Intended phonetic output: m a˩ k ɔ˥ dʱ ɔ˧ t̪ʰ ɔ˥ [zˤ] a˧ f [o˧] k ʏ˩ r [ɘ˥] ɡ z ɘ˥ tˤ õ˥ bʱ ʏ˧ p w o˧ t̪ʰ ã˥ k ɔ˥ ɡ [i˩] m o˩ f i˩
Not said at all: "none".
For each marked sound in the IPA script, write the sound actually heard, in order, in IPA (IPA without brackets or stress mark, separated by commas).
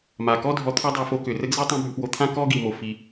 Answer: dˤ, o˧, ɘ˥, i˩